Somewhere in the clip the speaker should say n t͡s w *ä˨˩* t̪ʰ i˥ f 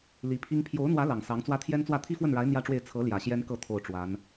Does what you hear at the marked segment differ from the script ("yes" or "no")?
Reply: yes